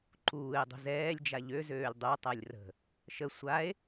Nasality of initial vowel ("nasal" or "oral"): oral